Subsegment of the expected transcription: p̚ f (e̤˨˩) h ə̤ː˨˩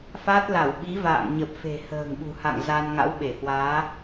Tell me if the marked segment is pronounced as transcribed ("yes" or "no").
yes